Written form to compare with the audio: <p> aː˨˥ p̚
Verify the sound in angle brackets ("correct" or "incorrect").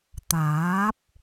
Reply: incorrect